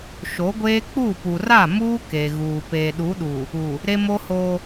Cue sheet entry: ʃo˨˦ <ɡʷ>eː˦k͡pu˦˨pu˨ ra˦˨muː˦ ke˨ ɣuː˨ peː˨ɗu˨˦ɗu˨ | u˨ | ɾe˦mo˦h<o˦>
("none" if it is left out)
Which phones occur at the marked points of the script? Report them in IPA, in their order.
ɡʷ, o˦

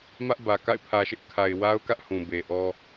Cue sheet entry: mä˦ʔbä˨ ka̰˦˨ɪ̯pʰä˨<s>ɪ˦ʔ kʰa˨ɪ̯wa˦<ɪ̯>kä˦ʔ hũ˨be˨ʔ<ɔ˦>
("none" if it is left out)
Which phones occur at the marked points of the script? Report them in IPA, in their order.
ʃ, ʊ̯, ɔ˦

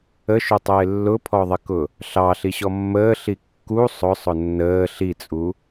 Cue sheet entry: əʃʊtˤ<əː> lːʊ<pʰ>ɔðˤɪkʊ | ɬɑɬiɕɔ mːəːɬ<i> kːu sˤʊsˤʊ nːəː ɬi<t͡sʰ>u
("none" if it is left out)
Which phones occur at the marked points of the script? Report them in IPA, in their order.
ɪː, pʰ, i, t͡sʼ

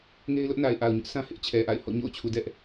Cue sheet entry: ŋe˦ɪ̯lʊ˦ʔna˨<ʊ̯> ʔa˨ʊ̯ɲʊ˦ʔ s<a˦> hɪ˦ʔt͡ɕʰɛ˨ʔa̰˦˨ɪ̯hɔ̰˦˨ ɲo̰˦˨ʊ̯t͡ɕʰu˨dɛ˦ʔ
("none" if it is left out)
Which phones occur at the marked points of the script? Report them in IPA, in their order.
ɪ̯, ã˦

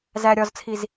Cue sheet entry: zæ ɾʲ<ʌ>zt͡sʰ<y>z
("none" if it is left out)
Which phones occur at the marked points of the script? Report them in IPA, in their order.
ɒ, i

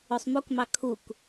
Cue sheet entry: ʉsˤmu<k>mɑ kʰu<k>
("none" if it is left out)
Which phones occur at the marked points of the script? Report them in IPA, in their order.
k, k

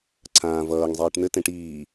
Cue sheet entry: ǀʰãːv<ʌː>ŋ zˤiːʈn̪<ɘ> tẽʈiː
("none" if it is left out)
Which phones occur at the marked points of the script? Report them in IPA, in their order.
ʌː, ɘ

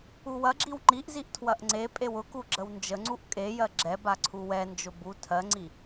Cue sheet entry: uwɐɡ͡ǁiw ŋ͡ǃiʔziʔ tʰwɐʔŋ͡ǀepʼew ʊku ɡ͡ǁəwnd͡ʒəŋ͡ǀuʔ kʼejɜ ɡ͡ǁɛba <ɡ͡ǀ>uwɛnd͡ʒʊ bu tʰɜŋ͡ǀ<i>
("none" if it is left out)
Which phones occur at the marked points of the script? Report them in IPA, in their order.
ǀʰ, i

